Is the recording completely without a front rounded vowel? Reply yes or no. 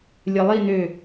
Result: no